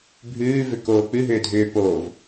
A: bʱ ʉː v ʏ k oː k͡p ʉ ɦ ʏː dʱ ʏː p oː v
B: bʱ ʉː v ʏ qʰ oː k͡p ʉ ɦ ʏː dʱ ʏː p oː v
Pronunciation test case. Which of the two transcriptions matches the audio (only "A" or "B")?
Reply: A